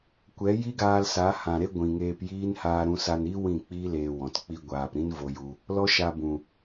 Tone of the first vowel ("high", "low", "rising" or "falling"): rising